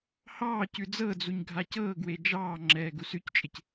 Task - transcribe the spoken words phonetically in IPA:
h ɑː c ʉ d͡z ɤ d͡z u ɲ ɡʱ a c ɤː ɡ w e d͡ʒ ɑː ŋ͡ǁ ɛː ɡ u s ʉ c t͡ʃʼ ɪ c

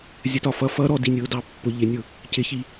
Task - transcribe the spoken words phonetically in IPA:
zʲ ə t ɒ f ʌ f ʌ ɾ ɔ d i nʲ ʊː d ɑ pː ʊ ʎ ɪ nʲ ʊ | c ɪ ç i

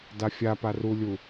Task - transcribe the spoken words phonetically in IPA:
d a fʲ a p a r u lʲ u

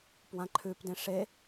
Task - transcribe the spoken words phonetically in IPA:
p w ã ǃʰ ʉ p d ẽ ʂ e

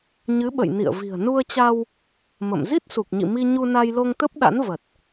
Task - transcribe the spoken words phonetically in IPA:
ɲ ɨ˨˦ ɓ ə̰˧˨ j n ḭ˧˨ ə̯ v i̤˨˩ ə̯ n u˧ ə̯ t͡ɕ a˧ w | m ə̰˧˨ m z i˦˥ t̚ s u˨˩ k̚ ɲ ḭ˧˨ m i˧ ɲ u˧ n a˧ j l o˧ ŋ t̪ ə˦˥ p̚ ɗ a̰˧˥ n v ə˨˩ t̚

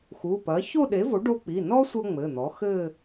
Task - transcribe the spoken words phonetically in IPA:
x u˩˧˩ p ɐ˩˥ ç o˥˧ ɗ e˩˥ v o˩˥ ɖ o˧ k͡p i˩˧˩ n ɔ˥ sʷ ɐ˥ ŋ͡m ɘ˩˧˩ n̪ ɔ˩˥ x ɘ˥˧

